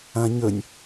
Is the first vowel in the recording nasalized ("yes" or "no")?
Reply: yes